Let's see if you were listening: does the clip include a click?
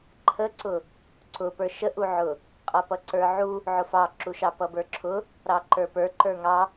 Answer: yes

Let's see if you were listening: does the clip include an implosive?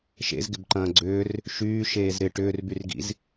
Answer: no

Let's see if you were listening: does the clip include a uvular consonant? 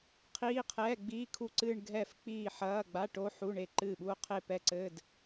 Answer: yes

